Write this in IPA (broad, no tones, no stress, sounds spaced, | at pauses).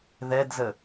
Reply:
ð ɛ d z ə